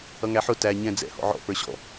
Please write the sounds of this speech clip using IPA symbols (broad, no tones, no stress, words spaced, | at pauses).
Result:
ʌŋæħʊ tæ ɲɛ̃ d͡zɛ̰hɔ̰ ʕɔ̰ pə˞ɕɔ̰